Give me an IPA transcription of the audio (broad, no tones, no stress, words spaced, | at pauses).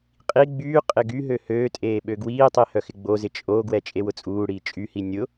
qʼi ɡ͡byː qʼɪɡyɦø høːtʼeː ɓøɡwiːtˤi hœxɪɡ͡bozɪ t͡ʃʼoɡwɛ t͡ʃʼewʊt͡sʼuːɽiː t͡ʃʼyhi nʲʊ